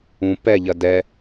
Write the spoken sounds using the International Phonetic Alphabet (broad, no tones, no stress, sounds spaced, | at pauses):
ũ p ɛ ʎ ɐ d ɛ